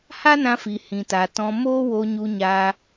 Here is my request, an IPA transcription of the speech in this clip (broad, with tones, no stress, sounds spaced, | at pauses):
h a˦ n ã˧ f i˨ h ĩ˨ t a˨ t ɔ̃˧ m oː˦ w o˧ ɲ u˧ ɲ aː˧